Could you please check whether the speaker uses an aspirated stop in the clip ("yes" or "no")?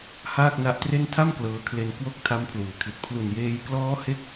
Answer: yes